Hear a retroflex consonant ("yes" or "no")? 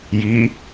no